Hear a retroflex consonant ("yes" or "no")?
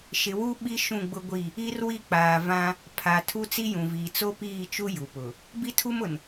no